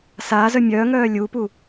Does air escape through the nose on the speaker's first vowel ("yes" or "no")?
no